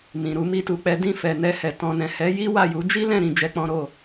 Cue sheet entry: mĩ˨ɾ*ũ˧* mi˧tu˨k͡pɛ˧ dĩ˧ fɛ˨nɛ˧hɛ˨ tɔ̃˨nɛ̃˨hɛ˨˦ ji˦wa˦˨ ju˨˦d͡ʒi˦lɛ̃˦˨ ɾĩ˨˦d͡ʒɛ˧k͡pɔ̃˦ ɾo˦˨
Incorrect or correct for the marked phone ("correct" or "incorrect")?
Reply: incorrect